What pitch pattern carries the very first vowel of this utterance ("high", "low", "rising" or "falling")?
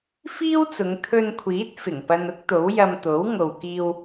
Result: high